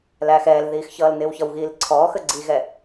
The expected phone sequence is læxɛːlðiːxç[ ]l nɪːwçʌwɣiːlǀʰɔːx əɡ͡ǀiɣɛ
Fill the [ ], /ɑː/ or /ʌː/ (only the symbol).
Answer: ʌː